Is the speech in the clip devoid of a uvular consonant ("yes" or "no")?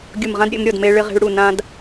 no